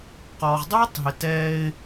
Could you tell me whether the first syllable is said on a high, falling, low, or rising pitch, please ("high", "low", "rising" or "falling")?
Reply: low